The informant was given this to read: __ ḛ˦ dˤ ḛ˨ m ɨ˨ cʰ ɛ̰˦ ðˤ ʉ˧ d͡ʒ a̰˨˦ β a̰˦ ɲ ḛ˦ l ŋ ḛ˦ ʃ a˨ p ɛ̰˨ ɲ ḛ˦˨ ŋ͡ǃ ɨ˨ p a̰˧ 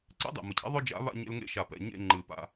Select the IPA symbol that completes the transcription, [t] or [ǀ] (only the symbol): ǀ